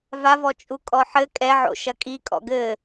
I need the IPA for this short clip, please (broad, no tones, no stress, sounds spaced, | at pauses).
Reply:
v a v ɔ t͡ʃʼ u kʼ ɔ ħ ɘ kʼ ɛ ʕ o̰ ʃ ɐ kʼ i kʼ ɔ̰ ɡ ɘ